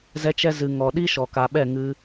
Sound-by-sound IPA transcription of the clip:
zɛ˧t͡ʃɛ˧ zɨ˨ŋɔ˨ ɗi˦ʃɔ˨ka˨ɓɛ˦˨ ŋɨ˧

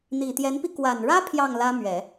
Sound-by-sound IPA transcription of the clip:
n̪i˨˩t̪jɛ˧˥npi˧ kwa˨˩nɻä˥ pʰjɑ˥˩ŋlä˥mɥɛ˨˩˦

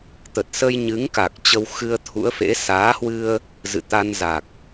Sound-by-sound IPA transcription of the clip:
t̪ə˨˩t̚sə˧jɲɨ˨˦ŋka˨˩k̚ t͡ɕə˧wxɨ˧ə̯t̪ʰṵ˧˥ə̯fḛ˧˥ saː˨˦hwɨ˧ə̯ | zɨ̰˧˨t̪a˧nza˨˩k̚

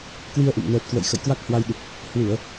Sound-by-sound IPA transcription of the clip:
kwi˧ə̯ʔṵ˧˨m nəː˨˩t̚kwə̰˧˨j xə̰˧˨jkwa˦˥k̚hwa˧jɗɨ˨˩k̚ | hwɨ˧˩˨ə̯

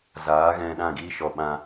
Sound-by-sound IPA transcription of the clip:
zaː˨˦ ɣɛ̃˧ɗã˦˨ɡiː˦ʃɔ˧ ɓã˧

